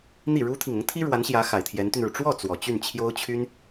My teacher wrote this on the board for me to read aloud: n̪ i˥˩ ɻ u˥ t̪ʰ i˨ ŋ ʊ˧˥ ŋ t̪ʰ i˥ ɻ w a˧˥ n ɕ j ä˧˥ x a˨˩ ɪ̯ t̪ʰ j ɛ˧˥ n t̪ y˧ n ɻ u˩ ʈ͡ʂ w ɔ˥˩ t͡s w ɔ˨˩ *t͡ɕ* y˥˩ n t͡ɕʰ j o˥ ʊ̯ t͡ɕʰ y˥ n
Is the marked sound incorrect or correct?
correct